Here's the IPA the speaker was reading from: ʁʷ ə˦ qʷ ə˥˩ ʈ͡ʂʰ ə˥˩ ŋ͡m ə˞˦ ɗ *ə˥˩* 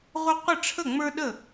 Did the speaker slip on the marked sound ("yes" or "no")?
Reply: no